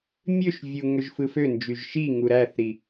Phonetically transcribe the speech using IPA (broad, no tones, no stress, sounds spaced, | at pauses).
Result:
mʲ ø ʃ vʲ u ŋ ø ʒ f ɯ f ø n d͡ʒ y ʒ ʃ i ŋ u ɾ æ θ ɾ i